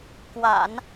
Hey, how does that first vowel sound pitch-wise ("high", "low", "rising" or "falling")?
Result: low